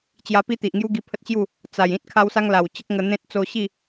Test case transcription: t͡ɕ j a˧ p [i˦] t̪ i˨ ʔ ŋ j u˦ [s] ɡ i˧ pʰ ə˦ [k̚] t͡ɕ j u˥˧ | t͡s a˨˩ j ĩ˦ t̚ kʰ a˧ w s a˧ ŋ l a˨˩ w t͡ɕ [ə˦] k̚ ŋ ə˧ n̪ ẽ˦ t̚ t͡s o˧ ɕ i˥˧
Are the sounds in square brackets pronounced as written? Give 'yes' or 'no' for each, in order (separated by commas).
yes, no, no, yes